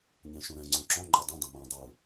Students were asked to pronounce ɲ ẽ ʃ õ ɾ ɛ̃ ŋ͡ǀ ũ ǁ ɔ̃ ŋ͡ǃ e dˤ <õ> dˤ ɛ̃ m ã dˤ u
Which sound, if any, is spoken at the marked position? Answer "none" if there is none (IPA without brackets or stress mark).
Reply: ũ